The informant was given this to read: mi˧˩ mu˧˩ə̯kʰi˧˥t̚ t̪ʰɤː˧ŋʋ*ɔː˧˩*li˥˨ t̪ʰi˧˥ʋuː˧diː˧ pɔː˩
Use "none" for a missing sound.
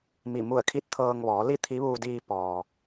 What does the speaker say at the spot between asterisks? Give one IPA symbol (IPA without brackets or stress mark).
ɔː˩˧